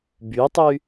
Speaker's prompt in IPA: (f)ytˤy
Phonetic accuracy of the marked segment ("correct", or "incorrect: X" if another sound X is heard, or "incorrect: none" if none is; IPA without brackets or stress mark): incorrect: b